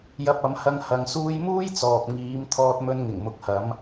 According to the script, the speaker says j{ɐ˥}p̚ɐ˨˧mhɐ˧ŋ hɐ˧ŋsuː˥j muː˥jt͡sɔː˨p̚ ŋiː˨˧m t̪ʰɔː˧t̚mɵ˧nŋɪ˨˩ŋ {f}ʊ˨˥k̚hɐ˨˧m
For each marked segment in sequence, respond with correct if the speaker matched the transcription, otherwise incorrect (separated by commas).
incorrect, incorrect